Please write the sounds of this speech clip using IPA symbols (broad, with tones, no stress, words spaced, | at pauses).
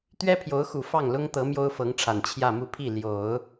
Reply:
t̪ɥɛ˥pʰjo˧˥ʊ̯xu˨˩ fɑ˥˩ŋlʊ˥ŋt̪ɤ˧˥ mjo˥ʊ̯fɤ˧˥ŋʈ͡ʂʰa˨˩n t͡ɕʰjä˥˧mu˥˧pʰi˥˩ ljo˨˩˦ʊ̯